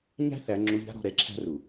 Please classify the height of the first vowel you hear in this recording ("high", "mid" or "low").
low